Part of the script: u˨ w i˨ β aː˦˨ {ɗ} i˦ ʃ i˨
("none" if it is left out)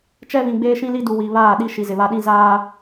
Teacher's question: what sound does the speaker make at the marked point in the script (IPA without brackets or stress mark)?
ɗ